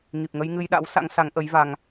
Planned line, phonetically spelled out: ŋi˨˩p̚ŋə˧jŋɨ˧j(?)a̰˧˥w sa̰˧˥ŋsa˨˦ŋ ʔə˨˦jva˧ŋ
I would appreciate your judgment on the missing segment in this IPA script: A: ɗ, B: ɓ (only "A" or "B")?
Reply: A